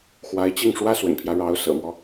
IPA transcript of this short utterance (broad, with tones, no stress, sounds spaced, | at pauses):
x w a˧˥ ɪ̯ t͡ɕ i˥˩ ŋ ʂ w ä˥ s w ə̰˨˩ n pʰ j ä˦ ɻ ɑ˧˥ ʊ̯ s ɤ̰˨˩ m w ɔ˦